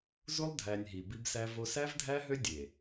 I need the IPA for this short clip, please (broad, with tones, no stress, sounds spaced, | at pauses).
z u˦ lˠ dʱ æ˨ nʲ ɦ i˨ b i˦ b s æ˦ v o˦ s æ˦ v dʱ æ˦ ɦ ø˦ dʲ e˨